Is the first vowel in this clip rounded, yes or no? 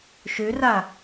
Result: yes